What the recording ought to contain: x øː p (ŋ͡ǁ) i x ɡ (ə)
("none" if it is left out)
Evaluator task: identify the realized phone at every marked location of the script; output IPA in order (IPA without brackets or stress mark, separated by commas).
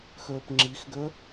ŋ͡ǁ, ø